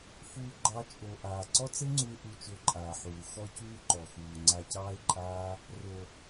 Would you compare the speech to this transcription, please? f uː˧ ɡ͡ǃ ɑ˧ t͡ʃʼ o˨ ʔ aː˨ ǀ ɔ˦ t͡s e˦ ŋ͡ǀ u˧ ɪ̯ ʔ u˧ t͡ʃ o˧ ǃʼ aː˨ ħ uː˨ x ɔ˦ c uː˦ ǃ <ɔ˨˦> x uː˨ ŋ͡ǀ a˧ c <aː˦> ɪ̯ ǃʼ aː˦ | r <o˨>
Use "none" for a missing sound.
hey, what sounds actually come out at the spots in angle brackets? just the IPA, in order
ɔ˨, ɑː˦, o˨

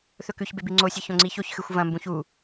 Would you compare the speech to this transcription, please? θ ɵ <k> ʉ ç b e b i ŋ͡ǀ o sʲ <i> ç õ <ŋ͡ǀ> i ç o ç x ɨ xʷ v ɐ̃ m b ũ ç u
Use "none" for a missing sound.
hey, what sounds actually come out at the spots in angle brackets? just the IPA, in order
k, ɨ, ŋ͡ǀ

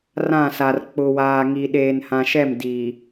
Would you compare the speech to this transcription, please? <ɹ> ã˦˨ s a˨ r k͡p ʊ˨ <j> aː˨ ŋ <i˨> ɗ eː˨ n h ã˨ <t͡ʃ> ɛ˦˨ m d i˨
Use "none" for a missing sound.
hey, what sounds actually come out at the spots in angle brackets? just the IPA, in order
r, w, i˨, ʃ

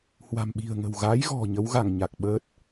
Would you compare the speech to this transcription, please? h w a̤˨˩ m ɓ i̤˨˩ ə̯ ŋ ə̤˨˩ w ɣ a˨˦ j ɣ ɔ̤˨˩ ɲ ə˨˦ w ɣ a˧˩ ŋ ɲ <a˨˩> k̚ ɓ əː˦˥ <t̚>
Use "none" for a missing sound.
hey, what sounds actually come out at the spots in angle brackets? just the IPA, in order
a˨˩, t̚

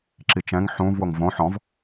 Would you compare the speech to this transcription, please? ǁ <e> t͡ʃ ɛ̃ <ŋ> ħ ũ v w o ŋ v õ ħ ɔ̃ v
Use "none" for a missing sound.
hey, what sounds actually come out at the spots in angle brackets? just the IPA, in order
i, ŋ

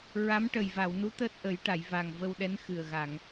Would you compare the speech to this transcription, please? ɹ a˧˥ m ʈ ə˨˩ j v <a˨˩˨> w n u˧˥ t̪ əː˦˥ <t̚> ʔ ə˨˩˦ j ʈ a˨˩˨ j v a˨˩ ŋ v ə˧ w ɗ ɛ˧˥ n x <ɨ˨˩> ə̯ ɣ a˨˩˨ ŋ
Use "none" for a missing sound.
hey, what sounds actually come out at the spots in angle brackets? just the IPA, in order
a˨˩˨, t̚, ɨ˨˩

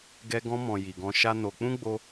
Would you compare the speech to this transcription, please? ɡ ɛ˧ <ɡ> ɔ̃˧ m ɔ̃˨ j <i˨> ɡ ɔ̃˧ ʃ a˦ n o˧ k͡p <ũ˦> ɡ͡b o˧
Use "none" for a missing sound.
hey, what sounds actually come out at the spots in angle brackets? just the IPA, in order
ɡ, i˨, ũ˦

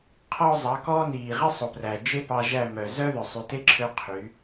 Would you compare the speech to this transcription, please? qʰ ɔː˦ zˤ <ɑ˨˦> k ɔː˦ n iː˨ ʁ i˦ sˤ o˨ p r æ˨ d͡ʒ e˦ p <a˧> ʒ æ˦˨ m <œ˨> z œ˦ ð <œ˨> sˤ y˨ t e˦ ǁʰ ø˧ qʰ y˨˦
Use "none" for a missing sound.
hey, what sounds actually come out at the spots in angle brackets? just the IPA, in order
ɑ˨˦, ɑ˧, œ˨, œ˨

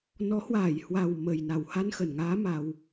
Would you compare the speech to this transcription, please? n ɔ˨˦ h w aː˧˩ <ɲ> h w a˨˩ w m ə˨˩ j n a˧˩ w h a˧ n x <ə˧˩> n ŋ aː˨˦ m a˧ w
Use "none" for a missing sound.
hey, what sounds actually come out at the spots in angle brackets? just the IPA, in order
j, ə˧˩

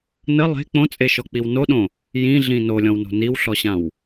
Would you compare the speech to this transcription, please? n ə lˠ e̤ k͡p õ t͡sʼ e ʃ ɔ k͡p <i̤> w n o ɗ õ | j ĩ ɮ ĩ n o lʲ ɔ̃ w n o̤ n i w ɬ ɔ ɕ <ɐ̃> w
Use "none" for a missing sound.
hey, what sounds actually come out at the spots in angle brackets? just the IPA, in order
i, ã

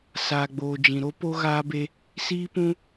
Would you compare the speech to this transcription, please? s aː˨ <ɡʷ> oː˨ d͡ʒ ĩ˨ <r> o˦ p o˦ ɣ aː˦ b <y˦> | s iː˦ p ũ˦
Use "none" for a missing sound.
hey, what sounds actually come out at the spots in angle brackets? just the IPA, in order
ɡ͡b, ɾ, e˦

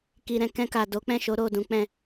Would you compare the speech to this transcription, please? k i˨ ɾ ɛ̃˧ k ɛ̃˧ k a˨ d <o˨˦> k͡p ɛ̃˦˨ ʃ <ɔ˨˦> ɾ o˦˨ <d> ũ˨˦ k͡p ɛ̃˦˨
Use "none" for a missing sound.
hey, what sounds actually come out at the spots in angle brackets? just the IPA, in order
o˨˦, o˨˦, d

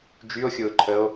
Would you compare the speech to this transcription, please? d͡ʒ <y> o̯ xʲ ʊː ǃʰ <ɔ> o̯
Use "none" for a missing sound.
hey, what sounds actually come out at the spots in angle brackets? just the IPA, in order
y, ə

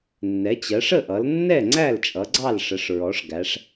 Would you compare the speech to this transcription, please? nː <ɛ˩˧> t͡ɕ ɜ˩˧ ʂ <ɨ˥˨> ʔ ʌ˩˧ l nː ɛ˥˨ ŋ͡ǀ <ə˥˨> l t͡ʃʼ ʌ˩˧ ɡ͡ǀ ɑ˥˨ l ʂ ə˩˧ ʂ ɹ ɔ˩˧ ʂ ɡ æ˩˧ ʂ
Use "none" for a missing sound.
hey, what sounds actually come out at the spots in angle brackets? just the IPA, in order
ɛ˩˧, ə˥˨, æ˥˨

